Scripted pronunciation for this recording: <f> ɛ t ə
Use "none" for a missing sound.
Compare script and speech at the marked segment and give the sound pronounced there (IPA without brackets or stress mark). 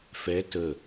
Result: f